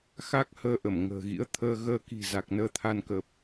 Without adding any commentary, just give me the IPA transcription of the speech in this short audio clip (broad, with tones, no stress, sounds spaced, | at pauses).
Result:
x a˦˥ k̚ h əː˧ ʔ ə˧˩ m ŋ ə̤ː˨˩ ɣ ḭ˧˥ ə̯ t̪ʰ əː˧ ɣ əː˧ k i̤˨˩ z a˨˩ k̚ n əː˧ t̪ʰ a˧ n k ə˨˩ p̚